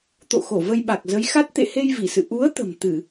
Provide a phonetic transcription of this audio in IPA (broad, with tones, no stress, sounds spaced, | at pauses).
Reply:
t̪ o̰˧˨ x o˧˩ v ə˧ j ɓ a˨˩ k̚ z ə˨˦ j x a˦˥ t̚ t̪ ḛ˧˨ h e˧ j v i˧˩ s ɨ̰˧˨ ʔ u˨˦ ə̯ t̪ ə̤˨˩ m t̪ ɨ˧˩˨